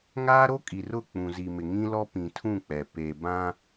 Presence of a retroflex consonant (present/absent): absent